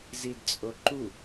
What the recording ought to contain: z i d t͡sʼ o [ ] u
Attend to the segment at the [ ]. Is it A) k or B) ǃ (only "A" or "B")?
B